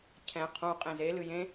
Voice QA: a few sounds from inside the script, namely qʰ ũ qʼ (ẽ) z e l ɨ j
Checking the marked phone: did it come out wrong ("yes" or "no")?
no